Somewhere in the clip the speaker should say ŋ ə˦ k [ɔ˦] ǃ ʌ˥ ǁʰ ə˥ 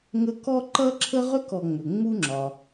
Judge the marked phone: incorrect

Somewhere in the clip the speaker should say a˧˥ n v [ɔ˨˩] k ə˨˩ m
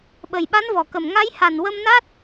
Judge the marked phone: correct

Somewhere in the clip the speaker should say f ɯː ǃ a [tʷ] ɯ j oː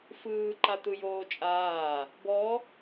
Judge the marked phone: incorrect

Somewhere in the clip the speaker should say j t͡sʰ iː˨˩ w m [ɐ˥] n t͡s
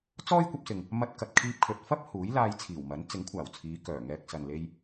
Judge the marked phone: incorrect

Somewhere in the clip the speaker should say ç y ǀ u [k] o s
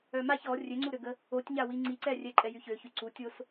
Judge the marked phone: incorrect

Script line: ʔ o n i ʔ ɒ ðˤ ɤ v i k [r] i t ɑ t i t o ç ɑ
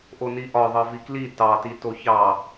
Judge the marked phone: incorrect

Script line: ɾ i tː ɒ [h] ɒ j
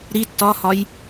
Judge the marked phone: correct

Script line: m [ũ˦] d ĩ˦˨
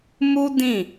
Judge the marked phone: incorrect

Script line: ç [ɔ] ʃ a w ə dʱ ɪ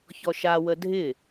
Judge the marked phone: correct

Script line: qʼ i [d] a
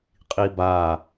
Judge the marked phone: incorrect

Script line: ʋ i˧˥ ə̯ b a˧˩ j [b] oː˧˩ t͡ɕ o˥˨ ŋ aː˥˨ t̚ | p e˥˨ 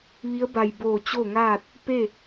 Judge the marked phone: correct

